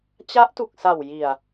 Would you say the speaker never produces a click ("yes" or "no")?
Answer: yes